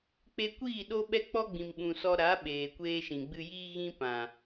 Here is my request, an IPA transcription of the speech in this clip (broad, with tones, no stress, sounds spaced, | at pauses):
k͡p e˧ kʷ iː˦˨ ɗ o˦ ɓ ɛ˦ k͡p ɔ˦ ɡ͡b ĩ˨ m ɓ ũ˨ s ɔ˧ ɾ a˨˦ ɓ eː˨ kʷ eː˧ ʃ ĩ˨ ɡ͡b ɨ˧ j iː˦ ɣ ĩ˦ p ã˨